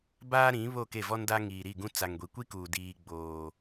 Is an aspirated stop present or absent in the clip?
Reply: absent